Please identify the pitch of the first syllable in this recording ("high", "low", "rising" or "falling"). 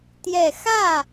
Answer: low